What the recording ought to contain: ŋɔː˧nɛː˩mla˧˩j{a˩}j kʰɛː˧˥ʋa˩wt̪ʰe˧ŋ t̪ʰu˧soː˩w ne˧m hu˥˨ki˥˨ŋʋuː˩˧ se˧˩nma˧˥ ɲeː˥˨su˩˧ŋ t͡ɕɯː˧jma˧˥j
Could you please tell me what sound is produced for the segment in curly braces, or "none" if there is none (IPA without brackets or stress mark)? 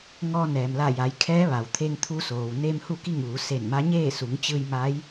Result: a˩˧